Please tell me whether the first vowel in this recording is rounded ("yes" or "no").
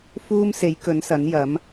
yes